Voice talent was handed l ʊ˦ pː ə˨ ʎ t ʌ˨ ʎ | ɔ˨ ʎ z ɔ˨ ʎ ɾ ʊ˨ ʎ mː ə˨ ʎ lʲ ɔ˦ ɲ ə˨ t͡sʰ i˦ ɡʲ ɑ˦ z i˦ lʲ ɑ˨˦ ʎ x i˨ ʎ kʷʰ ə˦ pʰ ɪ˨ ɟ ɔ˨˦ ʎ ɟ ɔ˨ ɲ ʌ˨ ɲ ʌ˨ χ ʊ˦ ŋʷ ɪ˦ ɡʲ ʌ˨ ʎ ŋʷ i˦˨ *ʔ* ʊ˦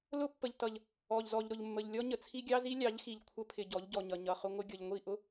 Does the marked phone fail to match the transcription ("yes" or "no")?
no